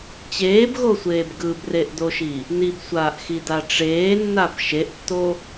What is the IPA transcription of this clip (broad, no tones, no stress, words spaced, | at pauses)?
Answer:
t͡ɕeːbɣosʷeːb ɡɯbreʔdoʃi | nibsʷaːʔxida ʈ͡ʂeːnːab ʃeʔtːo